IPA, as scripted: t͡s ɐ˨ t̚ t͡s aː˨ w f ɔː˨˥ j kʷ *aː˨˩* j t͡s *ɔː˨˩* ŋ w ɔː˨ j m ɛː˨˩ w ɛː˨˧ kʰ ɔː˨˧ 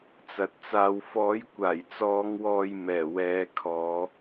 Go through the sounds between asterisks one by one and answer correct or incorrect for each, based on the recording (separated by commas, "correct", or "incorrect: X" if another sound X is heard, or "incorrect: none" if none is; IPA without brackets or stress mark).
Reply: correct, incorrect: ɔː˨˧